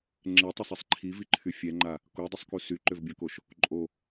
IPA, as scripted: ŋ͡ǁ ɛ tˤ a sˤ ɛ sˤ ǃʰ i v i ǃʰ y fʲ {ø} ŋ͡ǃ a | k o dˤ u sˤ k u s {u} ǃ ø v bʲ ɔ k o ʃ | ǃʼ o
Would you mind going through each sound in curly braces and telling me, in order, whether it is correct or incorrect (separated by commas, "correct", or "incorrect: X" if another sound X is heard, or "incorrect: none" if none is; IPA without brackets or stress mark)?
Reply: incorrect: ɛ, incorrect: y